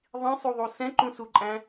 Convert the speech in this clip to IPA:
ðˤĩsˤuðˤu sɛ̃ǃũsuǃʼæ̃

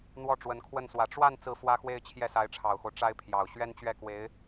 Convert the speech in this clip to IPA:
n̪wɔ˥˩ʈ͡ʂwə˧˥nkʰwə˥˩nswä˧˥ ʈ͡ʂwa˥˧n t͡sɹ̩˥˩fwä˥xwe˥˧ɪ̯ t͡ɕʰjɛ˥˩sa˧˥ɪ̯ʈ͡ʂʰɑ˨˩ʊ̯xo˦ʊ̯ ʈ͡ʂa˥ɪ̯pʰjɑ˨˩ʊ̯ ɕɥɛ˥nt͡ɕɥɛ˥˩ kwe˧˥ɪ̯

